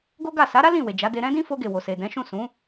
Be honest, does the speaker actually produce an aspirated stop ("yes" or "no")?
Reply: no